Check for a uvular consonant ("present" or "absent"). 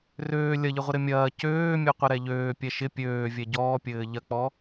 present